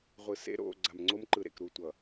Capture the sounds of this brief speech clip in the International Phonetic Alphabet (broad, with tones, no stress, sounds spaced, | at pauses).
ʁʷ ɯ˨ s ḛ˦ ɾ o̰˦˨ ɡ͡ǀ a˨ m ŋ͡ǀ o˦ m ǃ ɯ˨ ɾ ḛ˨ k ɾ u˨ tʷ ʌ˨